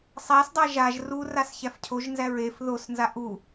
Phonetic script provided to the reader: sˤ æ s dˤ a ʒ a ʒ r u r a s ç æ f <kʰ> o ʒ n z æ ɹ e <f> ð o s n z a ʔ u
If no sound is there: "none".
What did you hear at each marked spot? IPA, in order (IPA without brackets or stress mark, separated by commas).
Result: cʰ, f